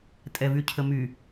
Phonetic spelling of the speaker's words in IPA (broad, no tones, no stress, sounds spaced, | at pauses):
tʼ ɛ v y cʰ ə m y